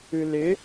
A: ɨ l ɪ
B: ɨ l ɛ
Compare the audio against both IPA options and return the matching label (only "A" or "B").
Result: A